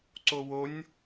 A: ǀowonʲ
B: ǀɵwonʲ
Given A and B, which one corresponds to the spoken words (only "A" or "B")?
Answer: A